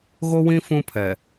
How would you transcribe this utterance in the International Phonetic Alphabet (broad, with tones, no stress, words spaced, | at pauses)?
ɣo˦wĩ˦ fũ˦pʰɛ˨